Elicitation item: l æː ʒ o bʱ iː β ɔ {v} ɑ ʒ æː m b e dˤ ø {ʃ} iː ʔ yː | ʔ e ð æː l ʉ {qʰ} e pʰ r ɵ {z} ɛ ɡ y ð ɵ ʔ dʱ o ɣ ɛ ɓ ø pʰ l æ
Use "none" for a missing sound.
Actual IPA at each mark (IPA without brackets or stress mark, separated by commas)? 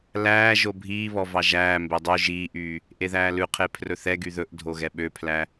v, ʒ, qʰ, θ